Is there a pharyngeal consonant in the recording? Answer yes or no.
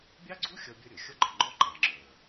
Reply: no